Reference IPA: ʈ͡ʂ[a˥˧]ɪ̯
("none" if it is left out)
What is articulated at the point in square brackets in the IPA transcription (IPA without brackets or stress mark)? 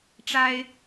a˥